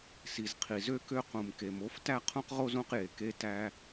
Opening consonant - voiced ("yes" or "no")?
no